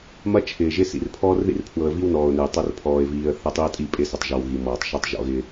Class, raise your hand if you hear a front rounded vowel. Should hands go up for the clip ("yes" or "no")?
no